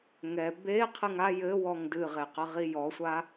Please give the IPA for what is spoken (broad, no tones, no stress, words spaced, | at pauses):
ŋɛ be qʰɨŋa jɘwɔŋ dɨʁeqɐʁi jɔsʷa